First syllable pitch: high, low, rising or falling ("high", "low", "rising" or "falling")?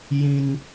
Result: high